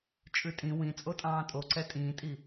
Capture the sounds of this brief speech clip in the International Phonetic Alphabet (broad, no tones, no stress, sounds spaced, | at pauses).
t͡ʃʼ ʉ tʼ ĩ w ĩ t͡sʼ o tʼ ɑ̃ː tʼ o ǀ ɛ tʼ ĩː tʼ i